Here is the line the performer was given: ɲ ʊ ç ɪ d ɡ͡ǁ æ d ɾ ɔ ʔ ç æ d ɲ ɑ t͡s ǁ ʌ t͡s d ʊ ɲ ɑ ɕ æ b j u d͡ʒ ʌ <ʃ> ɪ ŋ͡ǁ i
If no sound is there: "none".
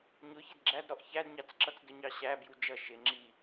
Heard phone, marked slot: ʃ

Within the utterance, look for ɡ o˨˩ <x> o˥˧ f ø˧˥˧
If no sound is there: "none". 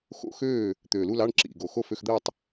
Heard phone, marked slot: x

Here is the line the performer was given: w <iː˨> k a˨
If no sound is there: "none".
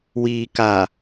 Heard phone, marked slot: iː˨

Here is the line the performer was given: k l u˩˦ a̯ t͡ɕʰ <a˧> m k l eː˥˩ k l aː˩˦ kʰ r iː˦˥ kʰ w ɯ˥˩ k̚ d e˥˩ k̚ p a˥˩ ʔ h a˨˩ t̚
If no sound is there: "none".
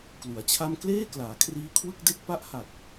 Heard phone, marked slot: a˥˩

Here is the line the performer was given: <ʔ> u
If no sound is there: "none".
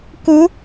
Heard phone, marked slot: k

